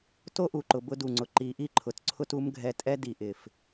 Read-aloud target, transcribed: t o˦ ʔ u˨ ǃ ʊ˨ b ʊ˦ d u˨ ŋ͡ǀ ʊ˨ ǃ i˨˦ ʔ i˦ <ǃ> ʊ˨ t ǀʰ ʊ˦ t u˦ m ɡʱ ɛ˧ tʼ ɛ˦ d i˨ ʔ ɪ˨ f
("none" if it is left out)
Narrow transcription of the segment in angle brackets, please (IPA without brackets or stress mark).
ǃʰ